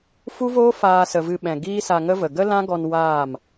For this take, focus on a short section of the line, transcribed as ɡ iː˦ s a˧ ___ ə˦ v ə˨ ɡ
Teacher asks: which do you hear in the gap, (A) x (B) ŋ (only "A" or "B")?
B